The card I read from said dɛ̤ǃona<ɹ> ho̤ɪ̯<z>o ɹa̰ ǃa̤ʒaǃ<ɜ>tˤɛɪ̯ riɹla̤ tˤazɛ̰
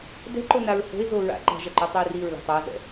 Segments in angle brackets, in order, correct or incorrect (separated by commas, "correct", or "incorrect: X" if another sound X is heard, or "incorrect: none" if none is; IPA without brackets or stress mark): correct, correct, correct